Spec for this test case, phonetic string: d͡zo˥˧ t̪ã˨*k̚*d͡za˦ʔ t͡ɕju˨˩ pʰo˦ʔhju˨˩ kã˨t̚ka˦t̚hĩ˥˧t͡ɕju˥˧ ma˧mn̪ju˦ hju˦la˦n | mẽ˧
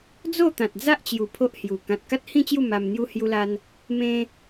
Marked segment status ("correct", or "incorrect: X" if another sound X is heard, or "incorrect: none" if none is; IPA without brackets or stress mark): incorrect: t̚